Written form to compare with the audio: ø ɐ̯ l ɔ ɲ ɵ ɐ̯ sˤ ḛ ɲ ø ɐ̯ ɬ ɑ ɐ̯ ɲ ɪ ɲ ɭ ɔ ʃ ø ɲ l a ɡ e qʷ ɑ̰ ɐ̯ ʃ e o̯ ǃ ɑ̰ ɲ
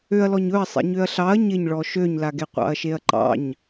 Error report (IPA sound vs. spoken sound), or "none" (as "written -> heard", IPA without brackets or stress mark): o̯ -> ɐ̯